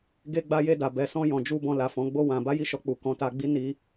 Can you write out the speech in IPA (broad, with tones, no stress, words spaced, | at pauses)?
ɡe˧ɡ͡ba˧je˧da˨ bɛ˨sɔ̃˧ jɔ̃˨d͡ʒu˧ bɔ̃˧la˨fɔ̃˨˦ɡ͡bo˦ wã˧ ba˦ji˦˨ʃɔ˧k͡pu˨ kɔ̃˨˦ta˧ɡ͡bi˦ ni˦